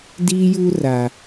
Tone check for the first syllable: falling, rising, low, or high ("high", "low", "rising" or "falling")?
high